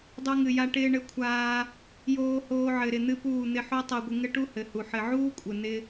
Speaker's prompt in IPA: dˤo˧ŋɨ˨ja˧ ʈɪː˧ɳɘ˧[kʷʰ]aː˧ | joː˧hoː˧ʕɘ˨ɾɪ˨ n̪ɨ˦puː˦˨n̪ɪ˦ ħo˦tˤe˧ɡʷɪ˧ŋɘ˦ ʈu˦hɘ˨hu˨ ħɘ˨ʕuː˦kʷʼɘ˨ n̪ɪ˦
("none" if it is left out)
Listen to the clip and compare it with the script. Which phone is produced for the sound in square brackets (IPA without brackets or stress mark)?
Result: kʷʰ